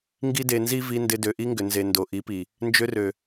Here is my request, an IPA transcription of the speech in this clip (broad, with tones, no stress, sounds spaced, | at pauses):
ŋ ɡ i˦ d e˧ n z i˦ v i˧ n d ɪ˧ d ø˨ ʔ i˧ ŋ ɡ ʏ˨ n z e˨ n d o˨ ʔ i˨˦ p i˨ | n d͡ʒ ø˧ r ø˨